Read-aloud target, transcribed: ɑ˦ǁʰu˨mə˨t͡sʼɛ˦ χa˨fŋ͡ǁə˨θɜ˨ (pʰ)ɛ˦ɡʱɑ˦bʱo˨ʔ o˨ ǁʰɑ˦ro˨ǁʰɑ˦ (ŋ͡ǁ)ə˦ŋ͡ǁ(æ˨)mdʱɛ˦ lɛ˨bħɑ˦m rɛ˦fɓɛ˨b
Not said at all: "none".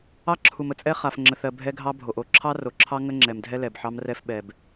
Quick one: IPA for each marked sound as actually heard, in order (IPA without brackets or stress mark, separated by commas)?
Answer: bʱ, ŋ, ɛ˨